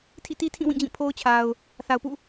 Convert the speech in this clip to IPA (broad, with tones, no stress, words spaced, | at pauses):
tʰḭ˦˨ti˦tʰĩ˦˨ wĩ˦˨d͡ʑĩ˦˨pʰo˦ʊ̯t͡ɕʰa˨ʊ̯ | θa˨ʊ̯pṵ˦˨